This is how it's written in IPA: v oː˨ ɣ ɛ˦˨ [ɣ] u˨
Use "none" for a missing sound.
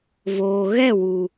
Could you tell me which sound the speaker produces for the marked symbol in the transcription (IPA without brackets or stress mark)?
w